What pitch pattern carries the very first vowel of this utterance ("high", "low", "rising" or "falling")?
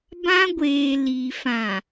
high